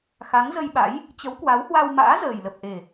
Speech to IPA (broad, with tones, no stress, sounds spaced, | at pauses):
x a˨˦ ŋ z ə˧ j ɓ a̰˧˥ j | t͡ɕ ə˨˦ w k w a˨˦ w h w a˧ w m a̰ː˧˥ z əː˨˩ j l ə˨˩ p̚ ʔ e˨˩